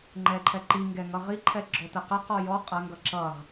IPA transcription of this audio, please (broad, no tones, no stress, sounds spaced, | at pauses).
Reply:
ŋ͡ǃ ɛ ǃʰ ɛ ǃ i ŋ ɡ ɛ ŋ ʌ ʁ i ǃʰ ɛ ɡ͡ǁ ɔ t ə q ə q ɔ j ɔ qʼ ɐ ŋ ɡ ʌ ǁ ʌ ʁ